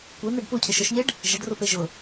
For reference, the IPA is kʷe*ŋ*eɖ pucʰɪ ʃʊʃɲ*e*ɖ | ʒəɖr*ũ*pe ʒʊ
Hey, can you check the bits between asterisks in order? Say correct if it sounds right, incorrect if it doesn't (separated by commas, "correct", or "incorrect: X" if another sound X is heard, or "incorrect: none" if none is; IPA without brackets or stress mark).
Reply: incorrect: n̪, correct, incorrect: u